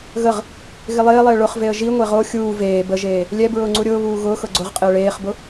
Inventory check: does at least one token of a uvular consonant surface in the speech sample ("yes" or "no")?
yes